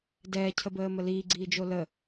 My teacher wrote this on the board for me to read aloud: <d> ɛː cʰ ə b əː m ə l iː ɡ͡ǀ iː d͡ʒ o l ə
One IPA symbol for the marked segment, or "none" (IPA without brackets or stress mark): d